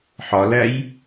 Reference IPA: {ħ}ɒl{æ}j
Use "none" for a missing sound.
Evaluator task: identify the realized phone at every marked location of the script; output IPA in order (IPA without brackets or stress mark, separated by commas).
ħ, æ